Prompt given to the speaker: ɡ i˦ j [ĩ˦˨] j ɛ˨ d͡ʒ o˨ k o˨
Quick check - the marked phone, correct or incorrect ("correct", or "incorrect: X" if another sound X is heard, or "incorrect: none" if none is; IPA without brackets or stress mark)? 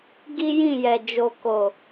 correct